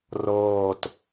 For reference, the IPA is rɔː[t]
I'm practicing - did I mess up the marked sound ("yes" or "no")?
no